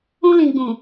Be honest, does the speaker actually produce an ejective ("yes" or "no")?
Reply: no